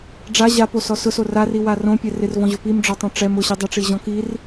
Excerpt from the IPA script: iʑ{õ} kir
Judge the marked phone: incorrect: ɔ̃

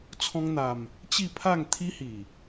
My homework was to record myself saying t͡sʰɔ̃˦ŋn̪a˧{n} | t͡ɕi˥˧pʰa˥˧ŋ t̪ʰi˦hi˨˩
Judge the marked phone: incorrect: m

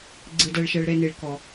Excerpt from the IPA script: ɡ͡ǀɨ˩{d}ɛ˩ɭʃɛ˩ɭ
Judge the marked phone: correct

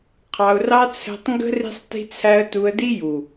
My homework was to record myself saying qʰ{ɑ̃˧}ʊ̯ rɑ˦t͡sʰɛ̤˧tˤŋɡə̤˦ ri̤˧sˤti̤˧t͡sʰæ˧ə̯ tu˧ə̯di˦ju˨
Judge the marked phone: incorrect: ɑ˧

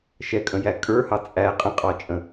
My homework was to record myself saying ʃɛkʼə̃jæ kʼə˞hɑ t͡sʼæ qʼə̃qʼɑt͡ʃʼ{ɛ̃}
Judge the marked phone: incorrect: ə̃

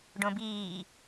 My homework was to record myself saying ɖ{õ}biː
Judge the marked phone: correct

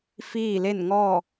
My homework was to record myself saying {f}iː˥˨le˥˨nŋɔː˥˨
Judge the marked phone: correct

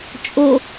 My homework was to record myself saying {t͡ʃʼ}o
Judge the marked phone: correct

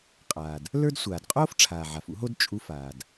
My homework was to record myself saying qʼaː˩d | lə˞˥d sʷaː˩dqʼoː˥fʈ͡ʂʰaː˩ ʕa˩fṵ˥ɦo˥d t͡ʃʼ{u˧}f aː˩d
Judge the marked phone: correct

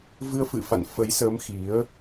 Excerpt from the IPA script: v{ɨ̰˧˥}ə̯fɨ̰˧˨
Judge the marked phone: incorrect: ɨ˧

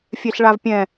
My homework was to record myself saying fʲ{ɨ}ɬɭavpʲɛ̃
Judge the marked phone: incorrect: e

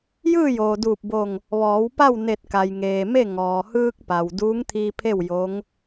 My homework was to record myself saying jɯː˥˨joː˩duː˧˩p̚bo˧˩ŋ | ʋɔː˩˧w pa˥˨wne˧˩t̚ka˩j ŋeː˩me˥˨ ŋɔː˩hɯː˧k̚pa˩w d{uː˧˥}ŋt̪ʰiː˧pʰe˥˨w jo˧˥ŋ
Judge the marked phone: correct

